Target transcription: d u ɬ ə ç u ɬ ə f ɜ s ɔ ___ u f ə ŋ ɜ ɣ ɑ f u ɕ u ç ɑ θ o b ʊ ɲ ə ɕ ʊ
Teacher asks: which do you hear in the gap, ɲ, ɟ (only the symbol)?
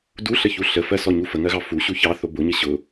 ɲ